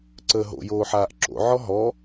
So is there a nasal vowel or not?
no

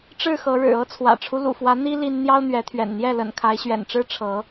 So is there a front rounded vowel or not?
no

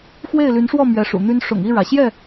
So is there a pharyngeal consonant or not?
no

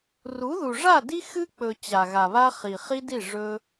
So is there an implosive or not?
no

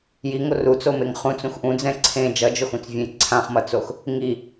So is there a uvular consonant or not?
yes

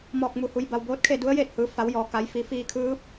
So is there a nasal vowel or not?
no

